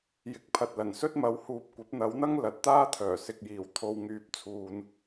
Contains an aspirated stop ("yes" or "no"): yes